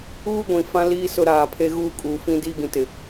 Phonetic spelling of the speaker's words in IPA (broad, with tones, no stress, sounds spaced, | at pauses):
uː˦ ɡʷ ĩ˨ f ã˦ l iː˦ s ʊ˦ ɾ aː˨ pʰ e˦ ɣ uː˦ kʼ uː˨ f ĩ˦ d iː˦ ɡ ĩ˨ t ɪ˨